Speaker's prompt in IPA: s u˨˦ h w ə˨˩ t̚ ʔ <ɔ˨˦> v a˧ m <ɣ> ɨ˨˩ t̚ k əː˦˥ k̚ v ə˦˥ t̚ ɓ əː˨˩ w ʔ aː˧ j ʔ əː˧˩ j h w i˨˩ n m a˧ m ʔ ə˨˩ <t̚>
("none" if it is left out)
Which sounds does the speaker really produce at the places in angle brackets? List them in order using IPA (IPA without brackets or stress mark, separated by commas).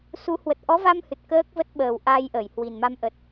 ɔ˨˦, h, t̚